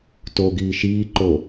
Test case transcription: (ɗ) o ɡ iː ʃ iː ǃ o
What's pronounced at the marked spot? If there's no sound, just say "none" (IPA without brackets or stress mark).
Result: t